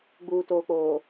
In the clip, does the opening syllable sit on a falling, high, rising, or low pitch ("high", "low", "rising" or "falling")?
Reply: low